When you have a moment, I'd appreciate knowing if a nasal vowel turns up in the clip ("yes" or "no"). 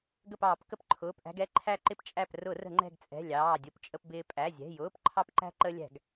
no